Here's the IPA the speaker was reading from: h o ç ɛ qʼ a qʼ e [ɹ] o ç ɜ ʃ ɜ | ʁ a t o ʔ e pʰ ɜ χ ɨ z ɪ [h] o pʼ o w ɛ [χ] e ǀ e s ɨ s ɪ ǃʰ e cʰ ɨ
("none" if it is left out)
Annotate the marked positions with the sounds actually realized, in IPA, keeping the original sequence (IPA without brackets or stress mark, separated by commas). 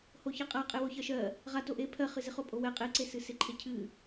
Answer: w, χ, qʼ